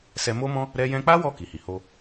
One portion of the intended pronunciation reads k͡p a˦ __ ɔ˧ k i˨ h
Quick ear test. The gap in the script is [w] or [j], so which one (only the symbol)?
w